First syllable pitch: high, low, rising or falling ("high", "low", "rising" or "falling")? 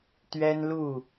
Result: high